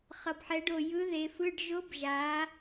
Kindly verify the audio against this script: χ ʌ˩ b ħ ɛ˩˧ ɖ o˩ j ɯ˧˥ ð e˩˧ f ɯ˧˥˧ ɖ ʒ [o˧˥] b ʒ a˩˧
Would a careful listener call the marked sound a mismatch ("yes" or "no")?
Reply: no